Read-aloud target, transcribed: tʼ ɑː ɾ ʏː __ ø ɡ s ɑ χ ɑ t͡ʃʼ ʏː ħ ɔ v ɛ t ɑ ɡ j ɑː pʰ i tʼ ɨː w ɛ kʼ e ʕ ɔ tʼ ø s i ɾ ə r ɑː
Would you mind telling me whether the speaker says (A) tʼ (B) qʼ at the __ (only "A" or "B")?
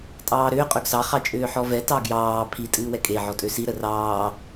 B